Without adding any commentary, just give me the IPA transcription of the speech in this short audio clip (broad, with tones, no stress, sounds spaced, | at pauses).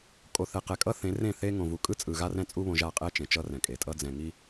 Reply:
kʼ o˨ θ ɛ˨ q ɛ˨ kʼ ʌ˦ θ ẽ˨˦ r ẽ˦˨ θ e˦ ŋ õ˨ v u˨ kʼ ɯ˦ t͡sʼ ɯ˨ ɣ a˦ r ɛ̃˦ t͡sʼ u˦ β õ˨ ʒ a˦˨ qʼ ɛ˦ t͡ʃ ẽ˨ t͡ʃ ʌ˦ r ɛ̃˨ kʼ e˨ tʼ ʌ˦ d͡z ɛ̃˨ ŋ i˦